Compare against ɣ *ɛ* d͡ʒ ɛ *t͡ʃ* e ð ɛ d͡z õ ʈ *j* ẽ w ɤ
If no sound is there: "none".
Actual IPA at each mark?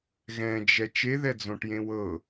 ɛ̃, t͡ʃ, j

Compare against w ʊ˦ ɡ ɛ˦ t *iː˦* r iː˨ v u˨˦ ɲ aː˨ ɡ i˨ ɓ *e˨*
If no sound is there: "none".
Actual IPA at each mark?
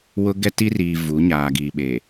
i˦, e˨

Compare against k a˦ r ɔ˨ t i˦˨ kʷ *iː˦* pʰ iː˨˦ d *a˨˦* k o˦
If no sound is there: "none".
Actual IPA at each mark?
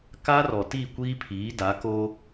iː˦, a˨˦

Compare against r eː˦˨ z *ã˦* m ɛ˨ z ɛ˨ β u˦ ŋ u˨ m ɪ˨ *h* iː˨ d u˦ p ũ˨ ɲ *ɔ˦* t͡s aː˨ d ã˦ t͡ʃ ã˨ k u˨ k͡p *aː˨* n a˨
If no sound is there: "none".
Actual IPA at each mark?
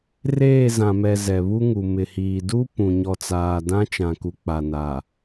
ã˨, h, ɔ˨, a˨

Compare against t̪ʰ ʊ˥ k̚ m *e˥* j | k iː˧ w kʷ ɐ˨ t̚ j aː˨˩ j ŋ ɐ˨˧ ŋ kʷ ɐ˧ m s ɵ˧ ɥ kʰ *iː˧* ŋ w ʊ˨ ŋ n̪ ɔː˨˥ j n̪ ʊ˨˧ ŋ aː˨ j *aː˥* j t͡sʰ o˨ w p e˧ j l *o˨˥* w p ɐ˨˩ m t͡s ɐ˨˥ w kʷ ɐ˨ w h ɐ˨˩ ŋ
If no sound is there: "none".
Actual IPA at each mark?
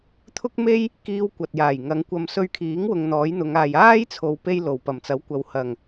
e˥, iː˨˥, aː˥, o˨˩

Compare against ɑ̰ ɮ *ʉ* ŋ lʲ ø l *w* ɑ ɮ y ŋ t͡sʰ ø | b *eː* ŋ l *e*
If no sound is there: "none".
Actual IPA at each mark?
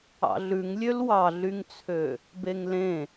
ʉ, w, e, ẽ

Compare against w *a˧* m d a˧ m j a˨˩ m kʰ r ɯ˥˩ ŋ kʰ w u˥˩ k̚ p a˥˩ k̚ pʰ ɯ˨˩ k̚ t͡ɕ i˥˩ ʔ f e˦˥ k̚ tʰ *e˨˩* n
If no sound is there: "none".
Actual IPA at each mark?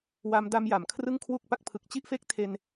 a˧, e˧

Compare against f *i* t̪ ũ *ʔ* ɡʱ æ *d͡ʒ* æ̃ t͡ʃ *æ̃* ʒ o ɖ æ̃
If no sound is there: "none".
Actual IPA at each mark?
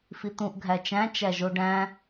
i, ʔ, t͡ʃ, æ

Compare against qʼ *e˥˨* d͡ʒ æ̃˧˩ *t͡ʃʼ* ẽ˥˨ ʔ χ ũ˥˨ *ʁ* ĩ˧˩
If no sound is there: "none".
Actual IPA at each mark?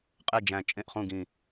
e˥˨, t͡ʃʼ, ɡ

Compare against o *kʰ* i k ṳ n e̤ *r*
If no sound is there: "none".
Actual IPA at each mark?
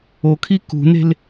kʰ, l

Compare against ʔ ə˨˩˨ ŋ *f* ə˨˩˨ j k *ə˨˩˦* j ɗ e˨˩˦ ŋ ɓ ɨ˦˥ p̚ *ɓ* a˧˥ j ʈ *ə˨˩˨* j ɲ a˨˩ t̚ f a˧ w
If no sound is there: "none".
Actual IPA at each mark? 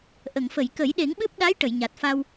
f, ə˨˩˦, ɗ, ə˨˩˨

